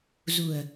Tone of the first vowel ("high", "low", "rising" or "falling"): low